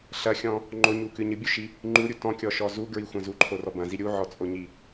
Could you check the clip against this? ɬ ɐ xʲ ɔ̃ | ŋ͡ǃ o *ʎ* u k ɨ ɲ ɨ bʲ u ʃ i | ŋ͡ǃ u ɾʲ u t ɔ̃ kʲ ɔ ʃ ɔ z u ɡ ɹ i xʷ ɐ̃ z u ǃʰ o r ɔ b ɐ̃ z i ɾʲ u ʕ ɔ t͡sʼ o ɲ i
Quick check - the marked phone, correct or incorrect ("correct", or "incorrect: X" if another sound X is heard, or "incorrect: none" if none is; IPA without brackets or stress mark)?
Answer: incorrect: ɲ